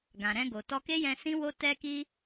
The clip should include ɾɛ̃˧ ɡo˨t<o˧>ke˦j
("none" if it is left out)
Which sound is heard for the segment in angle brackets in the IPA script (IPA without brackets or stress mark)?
ɔ˧